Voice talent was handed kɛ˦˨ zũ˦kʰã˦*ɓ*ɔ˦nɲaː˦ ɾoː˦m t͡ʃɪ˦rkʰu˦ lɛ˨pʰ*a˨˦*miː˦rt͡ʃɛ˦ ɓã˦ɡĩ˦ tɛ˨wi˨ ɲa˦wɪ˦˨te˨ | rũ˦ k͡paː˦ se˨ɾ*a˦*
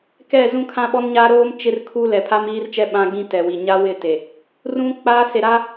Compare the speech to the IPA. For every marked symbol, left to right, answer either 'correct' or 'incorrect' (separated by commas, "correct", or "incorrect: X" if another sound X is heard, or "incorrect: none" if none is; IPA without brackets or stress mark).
correct, incorrect: a˦, correct